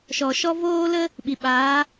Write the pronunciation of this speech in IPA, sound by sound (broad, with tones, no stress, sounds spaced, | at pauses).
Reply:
ʃ ɔ˨ ʃ ɔ˦ v oː˦ l ə˦ | ɓ i˨ ɓ aː˨˦